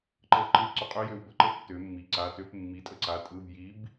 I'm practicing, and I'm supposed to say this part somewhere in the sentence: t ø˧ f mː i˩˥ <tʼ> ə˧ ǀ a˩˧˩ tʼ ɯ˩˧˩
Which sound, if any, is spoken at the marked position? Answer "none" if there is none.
tʼ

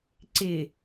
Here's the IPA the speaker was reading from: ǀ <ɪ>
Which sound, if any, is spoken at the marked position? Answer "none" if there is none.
ɪ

